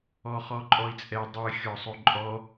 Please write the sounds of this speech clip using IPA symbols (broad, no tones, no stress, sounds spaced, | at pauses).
ɔ χ ɔ ǃʼ ɔ i̯ t͡sʼ ɛ dˤ ɨ xʲ ɔ sˤ o ǃʼ ɔ